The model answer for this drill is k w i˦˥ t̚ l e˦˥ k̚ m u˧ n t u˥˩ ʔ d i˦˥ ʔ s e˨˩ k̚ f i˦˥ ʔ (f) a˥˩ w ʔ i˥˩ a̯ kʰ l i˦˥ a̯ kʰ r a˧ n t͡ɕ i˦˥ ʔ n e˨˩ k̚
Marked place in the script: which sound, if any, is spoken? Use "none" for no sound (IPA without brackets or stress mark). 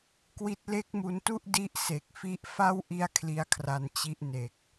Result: f